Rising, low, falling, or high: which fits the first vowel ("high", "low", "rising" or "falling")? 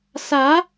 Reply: rising